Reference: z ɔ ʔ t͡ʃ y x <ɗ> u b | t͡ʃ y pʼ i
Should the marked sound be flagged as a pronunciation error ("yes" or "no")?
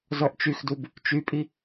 yes